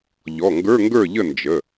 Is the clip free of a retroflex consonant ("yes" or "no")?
yes